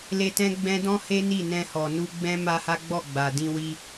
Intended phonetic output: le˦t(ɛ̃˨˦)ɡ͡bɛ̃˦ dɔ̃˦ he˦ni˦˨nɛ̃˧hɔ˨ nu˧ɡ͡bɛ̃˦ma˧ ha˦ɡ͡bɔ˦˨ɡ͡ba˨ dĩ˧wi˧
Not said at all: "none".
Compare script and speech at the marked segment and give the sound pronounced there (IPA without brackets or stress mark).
ɛ̃˦